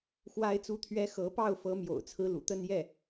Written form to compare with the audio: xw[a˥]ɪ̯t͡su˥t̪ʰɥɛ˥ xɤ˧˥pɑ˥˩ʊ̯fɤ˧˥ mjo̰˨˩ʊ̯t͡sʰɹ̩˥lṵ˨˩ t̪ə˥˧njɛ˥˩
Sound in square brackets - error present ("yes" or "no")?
no